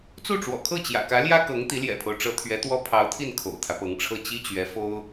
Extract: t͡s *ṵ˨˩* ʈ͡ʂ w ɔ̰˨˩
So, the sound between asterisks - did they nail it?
no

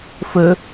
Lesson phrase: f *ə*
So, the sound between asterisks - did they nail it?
yes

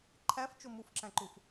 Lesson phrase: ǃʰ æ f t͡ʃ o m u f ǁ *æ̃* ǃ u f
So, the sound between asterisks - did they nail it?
yes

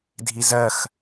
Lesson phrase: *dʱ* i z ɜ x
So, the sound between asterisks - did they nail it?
yes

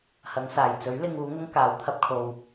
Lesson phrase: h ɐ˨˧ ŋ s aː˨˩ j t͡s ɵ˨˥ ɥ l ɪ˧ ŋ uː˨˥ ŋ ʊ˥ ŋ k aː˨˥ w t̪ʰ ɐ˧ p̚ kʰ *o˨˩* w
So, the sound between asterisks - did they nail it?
no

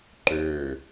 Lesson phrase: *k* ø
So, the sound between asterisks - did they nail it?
no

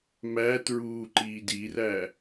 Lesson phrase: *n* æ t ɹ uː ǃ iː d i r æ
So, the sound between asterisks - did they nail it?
no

